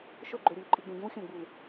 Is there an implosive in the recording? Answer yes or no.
no